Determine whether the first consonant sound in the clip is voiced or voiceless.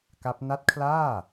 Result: voiceless